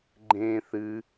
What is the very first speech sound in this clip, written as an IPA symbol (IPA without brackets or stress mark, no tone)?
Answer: ɡ͡ǃ